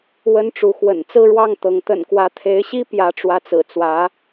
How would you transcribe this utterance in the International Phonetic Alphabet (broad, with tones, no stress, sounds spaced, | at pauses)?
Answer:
w ə˥ n ʈ͡ʂ u˧˥ x w ə̰˨˩ n t͡s ɹ̩˥˧ ɻ w ɑ˥˩ ŋ t̪ ɤ˧˥ ŋ t̪ ə̰˨˩ n k w ä˧˥ t̪ʰ e˧˥ ɪ̯ ɕ i˥ p j ä˧˥ ʈ͡ʂ w ä˧˥ t͡s ɹ̩˨˩ t͡s w ä˧˥